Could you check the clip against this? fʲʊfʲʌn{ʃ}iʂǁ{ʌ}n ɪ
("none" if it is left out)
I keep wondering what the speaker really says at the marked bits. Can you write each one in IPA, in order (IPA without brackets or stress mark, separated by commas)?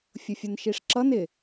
ʃ, ʌ